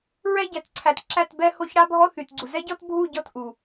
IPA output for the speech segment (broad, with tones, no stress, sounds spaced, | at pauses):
ɹ ɛ˦ ɟ æ˨ t ǀʰ æ˨ t ǁ æ˦˨ t b ɛ˦ h o˦ ç ɽ a˦ bʱ ɔ˦ θ y˨ t ɡ͡ǀ u˨ z ɛ˦ ɟ ɔ˦ t bʱ u˦˨ ɟ ɔ˦˨ t ʔ u˨